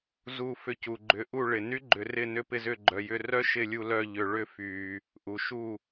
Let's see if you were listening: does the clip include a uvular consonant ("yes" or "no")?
no